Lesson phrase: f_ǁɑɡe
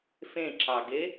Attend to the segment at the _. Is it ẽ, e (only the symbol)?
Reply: ẽ